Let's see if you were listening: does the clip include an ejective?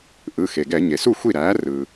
no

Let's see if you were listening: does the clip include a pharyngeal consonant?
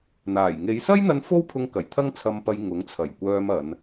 no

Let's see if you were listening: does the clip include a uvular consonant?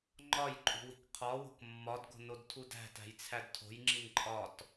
yes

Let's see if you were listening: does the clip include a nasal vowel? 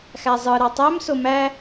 no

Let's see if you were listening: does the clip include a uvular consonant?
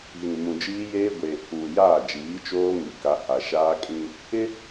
no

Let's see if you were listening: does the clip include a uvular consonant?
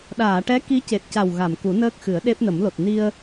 no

